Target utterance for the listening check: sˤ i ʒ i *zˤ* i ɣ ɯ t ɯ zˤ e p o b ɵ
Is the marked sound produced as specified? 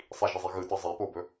yes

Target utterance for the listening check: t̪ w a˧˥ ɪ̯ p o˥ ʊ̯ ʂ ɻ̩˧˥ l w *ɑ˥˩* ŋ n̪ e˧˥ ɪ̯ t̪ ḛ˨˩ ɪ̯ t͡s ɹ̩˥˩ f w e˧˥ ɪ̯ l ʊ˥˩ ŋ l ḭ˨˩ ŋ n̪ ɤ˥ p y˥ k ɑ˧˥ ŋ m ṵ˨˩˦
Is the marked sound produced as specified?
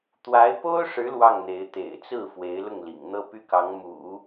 yes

